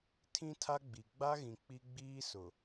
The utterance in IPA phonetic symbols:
tʰ ĩ˦ tʰ a˦ ɡ͡b i˨ ɡ͡b a˦ ɣ ĩ˨ k͡p i˦ ɡ͡b iː˦ s ʊ˨

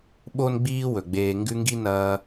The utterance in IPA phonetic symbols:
ɓ o˦ n ɡ͡b iː˦ w ɵ˩ ɡ͡b eː˨ ŋ ɡ ʉ˦ ŋ ɡ i˥ n ɐː˦

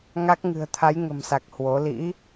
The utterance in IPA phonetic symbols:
ŋ a˦˥ k̚ ŋ ɨ̤˨˩ ə̯ t̪ʰ a˨˦ j ŋ ə̤˨˩ m s a˨˩ k̚ h w o˨˦ l ḭ˧˥

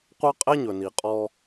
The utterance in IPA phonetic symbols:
qʷ ɑ˦ qʼ ɛ˦ ɲ ɵ˨ n i˨ qʼ ɔ˦

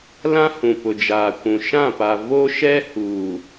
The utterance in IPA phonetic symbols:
l ã˦ h ũ˨ p ʊ˨ d͡ʒ aː˨ kʷ ũ˨ ʃ ã˦˨ p a˨ v o˦ ʃ ɛ˦ h uː˨

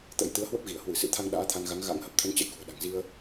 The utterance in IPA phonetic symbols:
t̪ ə̰˧˥ j t̪ ɨ˨˦ ə̯ h w ə˦˥ p̚ ɣ i˧˩ ə̯ h w ɨ˧˩ s ɨ̰˧˥ t̪ʰ a˧ ŋ ɗ a̰ː˧˥ t̪ʰ a˧ n ɣ a˨˦ ŋ ɣ a̰˧˥ ŋ h ə˦˥ p̚ t̪ʰ ə˧ n t͡ɕ ə̰˧˨ j k ṳ˨˩ ə̯ ɗ a̤˨˩ ŋ z i˧ ə̯

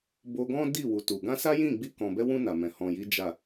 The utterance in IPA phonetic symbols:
b o˧ ɡ ɔ̃˦ d i˦˨ w u˨ t u˨ ɡ ã˧ s a˦ j ĩ˦˨ ɡ͡b i˧ k ɔ̃˨ b ɛ˧ w ũ˧ n a˨ m ɛ̃˨ h ɔ̃˨ j i˨˦ d͡ʒ a˦˨

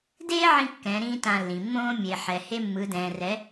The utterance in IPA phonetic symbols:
d eː˦ ʕ ĩ˧ kː ɛ̃˨˦ ɾ ĩː˦ t ã˧ lː ĩ˨ mː õː˦ mʲ e˨ ħ ɛ˨ h e˦ mː ɯ˨˦ d ɛ̃ː˨ r ɛ˨˦

